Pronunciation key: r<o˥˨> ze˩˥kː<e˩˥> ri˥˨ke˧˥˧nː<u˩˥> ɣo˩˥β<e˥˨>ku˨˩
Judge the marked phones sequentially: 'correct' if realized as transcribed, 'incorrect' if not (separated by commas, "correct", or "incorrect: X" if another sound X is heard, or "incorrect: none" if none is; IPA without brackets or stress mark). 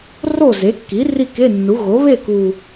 correct, incorrect: i˩˥, correct, correct